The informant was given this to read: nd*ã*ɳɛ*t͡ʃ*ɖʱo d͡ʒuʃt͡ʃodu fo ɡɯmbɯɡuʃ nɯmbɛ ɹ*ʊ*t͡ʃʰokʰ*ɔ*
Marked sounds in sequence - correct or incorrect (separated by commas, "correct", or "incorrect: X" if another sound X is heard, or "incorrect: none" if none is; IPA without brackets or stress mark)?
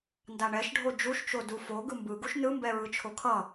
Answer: incorrect: a, incorrect: ʃ, incorrect: ɯ, incorrect: ʌ